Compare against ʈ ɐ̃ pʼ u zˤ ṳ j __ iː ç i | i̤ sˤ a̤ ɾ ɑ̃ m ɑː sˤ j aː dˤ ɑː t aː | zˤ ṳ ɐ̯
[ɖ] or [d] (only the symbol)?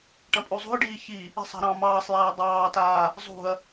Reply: ɖ